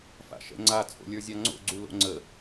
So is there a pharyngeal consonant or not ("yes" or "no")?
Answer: no